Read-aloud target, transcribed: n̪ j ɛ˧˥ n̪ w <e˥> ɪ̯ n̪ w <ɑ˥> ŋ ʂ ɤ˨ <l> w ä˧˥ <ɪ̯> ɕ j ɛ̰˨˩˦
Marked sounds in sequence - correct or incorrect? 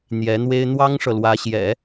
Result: correct, correct, correct, incorrect

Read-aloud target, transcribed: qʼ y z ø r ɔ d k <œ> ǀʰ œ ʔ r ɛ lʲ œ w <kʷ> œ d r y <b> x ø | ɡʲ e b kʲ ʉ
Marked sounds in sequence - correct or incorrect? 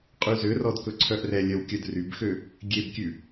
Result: incorrect, incorrect, correct

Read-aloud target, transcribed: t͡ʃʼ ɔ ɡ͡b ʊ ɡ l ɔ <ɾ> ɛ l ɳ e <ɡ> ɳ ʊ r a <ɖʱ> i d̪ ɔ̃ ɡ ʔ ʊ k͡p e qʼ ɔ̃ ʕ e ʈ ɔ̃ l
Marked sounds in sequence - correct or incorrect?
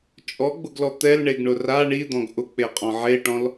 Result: incorrect, correct, incorrect

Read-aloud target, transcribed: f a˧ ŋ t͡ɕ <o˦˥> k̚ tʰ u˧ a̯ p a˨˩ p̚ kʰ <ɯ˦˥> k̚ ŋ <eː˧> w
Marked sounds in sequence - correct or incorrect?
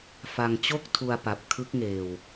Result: incorrect, correct, correct

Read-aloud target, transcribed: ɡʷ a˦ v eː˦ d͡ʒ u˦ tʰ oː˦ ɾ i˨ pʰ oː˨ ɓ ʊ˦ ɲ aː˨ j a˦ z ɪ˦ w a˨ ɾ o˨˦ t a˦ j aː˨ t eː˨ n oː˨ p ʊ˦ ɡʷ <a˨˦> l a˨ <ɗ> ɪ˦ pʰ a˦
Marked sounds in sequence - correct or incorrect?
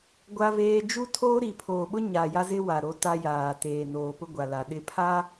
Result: incorrect, correct

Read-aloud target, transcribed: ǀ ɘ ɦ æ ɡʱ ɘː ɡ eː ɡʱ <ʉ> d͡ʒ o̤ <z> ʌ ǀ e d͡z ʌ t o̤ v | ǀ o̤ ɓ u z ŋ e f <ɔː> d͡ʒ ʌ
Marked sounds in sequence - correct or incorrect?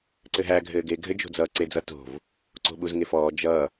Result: incorrect, incorrect, correct

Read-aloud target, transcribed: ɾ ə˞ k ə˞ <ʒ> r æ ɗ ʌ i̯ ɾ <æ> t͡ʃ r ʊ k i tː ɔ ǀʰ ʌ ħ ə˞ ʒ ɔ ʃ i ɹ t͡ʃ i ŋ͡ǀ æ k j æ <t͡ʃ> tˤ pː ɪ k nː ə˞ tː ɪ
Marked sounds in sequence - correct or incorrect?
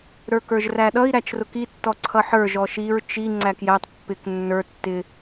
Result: correct, correct, incorrect

